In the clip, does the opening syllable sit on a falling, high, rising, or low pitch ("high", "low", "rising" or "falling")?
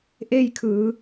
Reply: falling